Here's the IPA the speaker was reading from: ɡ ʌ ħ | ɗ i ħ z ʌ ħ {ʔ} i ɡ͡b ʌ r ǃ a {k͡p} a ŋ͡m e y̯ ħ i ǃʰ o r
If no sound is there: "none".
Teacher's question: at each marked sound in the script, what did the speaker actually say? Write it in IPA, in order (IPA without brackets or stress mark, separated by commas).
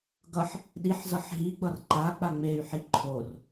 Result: ɦ, k͡p